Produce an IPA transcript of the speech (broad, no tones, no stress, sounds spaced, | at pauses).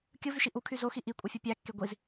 kʲ ɯ v y ʃ i ʔ u kʰ y z o x i ʔ i kʷʼ ɯ fʲ ɯ pʲ æ kː e ɡʷ i z